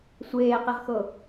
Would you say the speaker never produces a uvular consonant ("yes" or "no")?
no